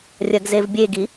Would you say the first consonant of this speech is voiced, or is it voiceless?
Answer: voiced